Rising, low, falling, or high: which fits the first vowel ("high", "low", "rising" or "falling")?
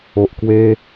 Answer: low